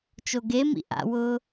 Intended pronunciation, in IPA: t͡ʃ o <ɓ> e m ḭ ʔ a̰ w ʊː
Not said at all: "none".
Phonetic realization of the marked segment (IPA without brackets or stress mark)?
ɡ